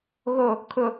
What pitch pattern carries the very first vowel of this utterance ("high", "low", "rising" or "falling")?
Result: low